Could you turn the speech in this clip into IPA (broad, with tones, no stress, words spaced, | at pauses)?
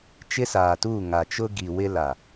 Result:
t͡ʃɪ˦saː˨tuː˦˨ ŋa˨t͡ʃʊ˦ ɡi˨ wɪ˦la˨